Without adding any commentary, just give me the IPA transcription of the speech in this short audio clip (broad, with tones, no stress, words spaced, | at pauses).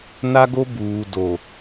na˦ɡo˦ buː˨do˨